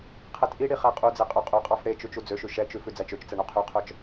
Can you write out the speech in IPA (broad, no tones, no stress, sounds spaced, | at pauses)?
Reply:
qʰ ɛ t ʔ i ɽ i χ æ qʼ u d͡z e qʼ ø qʼ ʉ qʼ ɑ f ɽ e t͡ʃ ʉ t͡ʃ u d͡z ø ʃ ʉ ʃ ɛ t͡ʃ ʉ f ʉ d͡z æ t͡ʃ ø t͡ʃ t͡s ɛ ɳ œ qʰ y qʰ œ t͡ʃ